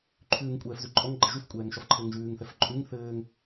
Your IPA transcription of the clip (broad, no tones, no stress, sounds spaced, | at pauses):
ǃʰ ʉː ŋ kʷʼ ɛː f z ʉ ǃʼ ɔ ŋ ɡ͡ǃ ɘ ʒ ʉ f kʷʼ ɛː ŋ ʃ ɒ f ǃʰ ɘː ŋ ʒ ʉː ŋ θ ɛ f ǃʼ ʉ ŋ θ ɘː ŋ